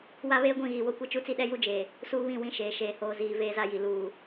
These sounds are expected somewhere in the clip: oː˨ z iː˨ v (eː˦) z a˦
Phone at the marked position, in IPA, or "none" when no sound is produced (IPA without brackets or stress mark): eː˦